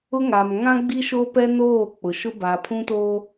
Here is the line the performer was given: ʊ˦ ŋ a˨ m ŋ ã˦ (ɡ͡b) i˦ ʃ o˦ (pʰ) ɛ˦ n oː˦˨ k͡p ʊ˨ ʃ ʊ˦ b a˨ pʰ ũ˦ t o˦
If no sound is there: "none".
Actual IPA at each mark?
ɡ͡b, p

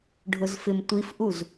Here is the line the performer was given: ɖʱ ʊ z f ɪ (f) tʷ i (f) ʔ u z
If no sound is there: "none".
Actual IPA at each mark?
m, f

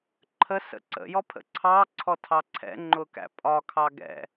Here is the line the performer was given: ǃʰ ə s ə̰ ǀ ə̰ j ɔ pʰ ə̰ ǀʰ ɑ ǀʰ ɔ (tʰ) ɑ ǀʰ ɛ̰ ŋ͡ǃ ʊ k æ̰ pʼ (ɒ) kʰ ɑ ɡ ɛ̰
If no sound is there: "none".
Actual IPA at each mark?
tʰ, ɒ

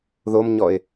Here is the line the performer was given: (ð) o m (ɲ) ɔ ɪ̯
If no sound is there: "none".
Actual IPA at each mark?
ð, ɲ

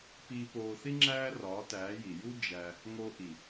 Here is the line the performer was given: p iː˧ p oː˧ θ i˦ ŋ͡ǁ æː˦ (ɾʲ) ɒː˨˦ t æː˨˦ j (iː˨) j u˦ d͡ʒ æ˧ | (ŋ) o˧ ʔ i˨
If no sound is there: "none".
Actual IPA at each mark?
r, i˨, ŋ

